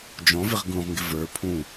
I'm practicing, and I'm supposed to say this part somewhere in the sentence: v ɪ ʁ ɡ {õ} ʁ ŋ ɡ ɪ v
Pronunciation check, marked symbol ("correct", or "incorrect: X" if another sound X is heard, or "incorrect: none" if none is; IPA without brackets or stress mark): incorrect: ũ